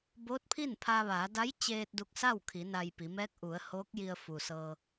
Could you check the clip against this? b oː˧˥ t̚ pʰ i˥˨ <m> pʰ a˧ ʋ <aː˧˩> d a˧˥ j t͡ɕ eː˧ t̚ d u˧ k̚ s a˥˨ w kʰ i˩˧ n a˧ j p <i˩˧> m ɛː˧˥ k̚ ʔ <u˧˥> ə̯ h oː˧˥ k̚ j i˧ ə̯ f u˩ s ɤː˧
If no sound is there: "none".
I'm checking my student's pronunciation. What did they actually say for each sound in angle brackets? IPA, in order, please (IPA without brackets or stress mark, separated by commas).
n, aː˩˧, i˩˧, u˩˧